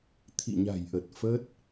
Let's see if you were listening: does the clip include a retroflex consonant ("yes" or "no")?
no